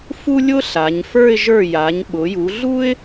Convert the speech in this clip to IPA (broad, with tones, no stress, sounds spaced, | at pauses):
f u˥ lʲ ʊ˥ ɬ a˩˧ ɲ f ə˞˥˧ ɪ̯ ʒ ə˞˧˩ j a˩˧ ɲ ɓ ʊ˩˧ j u˩˧ ɮ u˥ ɪ̯